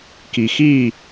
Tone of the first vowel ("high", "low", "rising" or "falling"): low